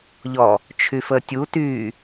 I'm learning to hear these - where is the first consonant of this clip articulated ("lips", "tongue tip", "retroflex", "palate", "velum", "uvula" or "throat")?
palate